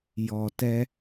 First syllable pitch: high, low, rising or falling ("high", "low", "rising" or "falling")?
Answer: low